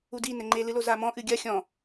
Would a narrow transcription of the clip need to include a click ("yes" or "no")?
yes